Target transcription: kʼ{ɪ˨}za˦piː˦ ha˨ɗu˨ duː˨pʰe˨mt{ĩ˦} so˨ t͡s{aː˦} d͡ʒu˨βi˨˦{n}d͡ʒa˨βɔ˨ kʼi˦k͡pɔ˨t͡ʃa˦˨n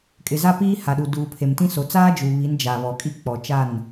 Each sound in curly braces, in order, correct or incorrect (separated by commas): correct, correct, correct, correct